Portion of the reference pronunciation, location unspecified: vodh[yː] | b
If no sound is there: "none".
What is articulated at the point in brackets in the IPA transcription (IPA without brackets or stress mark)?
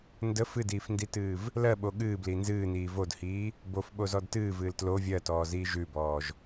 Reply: iː